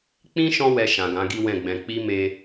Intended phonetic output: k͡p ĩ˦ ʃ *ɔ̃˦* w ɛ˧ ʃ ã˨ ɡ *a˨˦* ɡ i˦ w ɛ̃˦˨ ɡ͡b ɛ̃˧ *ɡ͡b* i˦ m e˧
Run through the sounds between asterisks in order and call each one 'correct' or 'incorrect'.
correct, incorrect: ã˨˦, incorrect: k͡p

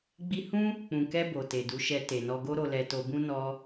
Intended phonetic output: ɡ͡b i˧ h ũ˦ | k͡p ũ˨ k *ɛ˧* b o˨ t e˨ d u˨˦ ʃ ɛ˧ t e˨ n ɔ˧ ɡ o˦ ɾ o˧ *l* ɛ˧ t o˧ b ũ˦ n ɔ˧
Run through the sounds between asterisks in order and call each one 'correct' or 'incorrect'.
correct, correct

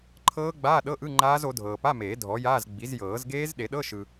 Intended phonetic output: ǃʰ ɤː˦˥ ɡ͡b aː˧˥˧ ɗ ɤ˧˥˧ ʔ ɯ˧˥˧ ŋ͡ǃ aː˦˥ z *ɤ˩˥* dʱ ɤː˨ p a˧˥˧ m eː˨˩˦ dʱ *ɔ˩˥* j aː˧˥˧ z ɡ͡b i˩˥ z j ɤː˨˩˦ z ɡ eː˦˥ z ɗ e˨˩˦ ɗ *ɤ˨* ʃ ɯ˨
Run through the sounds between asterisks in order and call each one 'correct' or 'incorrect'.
incorrect: o˩˥, correct, incorrect: ɤ˧˥˧

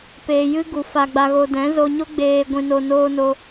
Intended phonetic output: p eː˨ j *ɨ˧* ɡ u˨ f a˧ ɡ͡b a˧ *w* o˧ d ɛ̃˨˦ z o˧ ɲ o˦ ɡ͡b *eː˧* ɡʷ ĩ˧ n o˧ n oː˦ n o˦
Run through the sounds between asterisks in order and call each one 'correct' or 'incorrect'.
correct, incorrect: ɣ, correct

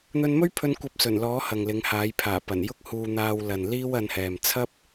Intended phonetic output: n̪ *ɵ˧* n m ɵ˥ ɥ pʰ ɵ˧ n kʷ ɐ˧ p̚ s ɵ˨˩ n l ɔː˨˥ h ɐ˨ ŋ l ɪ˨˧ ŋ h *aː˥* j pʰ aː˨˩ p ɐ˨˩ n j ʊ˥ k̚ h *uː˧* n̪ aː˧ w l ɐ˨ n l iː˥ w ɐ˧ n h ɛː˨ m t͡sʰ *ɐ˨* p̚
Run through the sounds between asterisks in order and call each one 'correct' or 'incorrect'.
correct, incorrect: aː˨˥, correct, incorrect: ɐ˥

